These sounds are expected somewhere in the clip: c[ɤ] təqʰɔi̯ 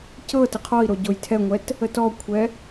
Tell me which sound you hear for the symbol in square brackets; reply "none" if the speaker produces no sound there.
ɤ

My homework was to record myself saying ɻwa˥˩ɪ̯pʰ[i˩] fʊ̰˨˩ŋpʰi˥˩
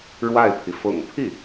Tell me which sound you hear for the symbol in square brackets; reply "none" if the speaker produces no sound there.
i˩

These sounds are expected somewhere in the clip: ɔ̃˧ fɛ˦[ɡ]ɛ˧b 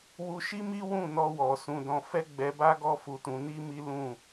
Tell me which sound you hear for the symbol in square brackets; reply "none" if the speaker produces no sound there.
ɡ͡b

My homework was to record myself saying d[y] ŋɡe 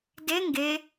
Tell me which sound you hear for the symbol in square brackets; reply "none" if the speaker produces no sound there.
e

